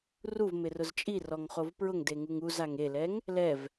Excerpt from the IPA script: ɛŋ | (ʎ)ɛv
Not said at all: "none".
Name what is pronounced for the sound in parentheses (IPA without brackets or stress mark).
l